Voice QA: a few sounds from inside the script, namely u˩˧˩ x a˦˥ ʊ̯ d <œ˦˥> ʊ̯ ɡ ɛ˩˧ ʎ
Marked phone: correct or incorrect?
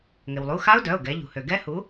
incorrect